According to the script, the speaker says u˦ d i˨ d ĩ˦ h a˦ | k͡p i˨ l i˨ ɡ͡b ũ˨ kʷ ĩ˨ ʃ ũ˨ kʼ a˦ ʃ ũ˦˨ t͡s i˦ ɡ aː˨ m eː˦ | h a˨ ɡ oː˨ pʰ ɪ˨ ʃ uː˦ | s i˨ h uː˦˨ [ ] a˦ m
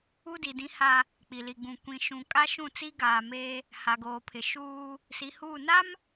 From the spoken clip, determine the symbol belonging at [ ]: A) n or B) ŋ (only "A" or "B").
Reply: A